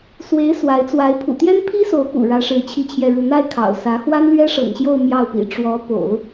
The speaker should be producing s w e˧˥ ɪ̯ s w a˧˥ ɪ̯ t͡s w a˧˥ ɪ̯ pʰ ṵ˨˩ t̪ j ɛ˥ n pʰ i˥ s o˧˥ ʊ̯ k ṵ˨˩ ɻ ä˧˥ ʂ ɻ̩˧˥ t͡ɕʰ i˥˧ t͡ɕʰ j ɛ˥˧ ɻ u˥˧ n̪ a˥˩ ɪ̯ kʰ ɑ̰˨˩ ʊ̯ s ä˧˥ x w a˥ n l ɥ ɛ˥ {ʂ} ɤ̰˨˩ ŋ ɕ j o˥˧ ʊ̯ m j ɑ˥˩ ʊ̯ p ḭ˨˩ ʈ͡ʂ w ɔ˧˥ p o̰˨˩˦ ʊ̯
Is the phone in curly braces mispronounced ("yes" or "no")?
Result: no